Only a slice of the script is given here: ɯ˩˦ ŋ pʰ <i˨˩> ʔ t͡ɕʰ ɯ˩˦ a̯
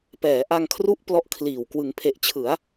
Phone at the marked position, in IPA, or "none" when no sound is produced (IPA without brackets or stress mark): e˨˩